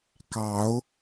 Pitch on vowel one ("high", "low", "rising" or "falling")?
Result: rising